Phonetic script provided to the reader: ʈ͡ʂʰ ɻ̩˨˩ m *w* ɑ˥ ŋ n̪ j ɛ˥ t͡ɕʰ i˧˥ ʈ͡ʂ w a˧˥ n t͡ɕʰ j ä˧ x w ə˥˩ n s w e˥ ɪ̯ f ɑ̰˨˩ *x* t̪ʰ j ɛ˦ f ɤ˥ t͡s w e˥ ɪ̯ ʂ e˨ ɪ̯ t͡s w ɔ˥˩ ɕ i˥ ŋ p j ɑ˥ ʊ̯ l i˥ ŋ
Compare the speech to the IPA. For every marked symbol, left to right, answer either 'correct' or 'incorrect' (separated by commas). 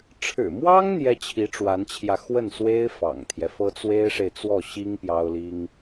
correct, incorrect